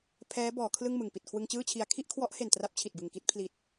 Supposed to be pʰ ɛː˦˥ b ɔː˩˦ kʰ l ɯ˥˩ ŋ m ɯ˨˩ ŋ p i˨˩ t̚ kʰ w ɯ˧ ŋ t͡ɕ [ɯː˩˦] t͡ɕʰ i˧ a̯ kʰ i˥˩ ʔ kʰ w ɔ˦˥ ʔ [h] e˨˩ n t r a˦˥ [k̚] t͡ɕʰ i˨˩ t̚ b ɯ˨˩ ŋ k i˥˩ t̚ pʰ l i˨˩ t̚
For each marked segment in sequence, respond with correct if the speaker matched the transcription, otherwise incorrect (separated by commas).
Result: incorrect, correct, incorrect